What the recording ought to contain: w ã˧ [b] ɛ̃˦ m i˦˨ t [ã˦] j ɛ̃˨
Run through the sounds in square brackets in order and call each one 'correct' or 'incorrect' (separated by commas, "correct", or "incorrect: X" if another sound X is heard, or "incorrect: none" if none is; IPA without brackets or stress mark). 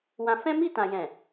incorrect: f, incorrect: ã˨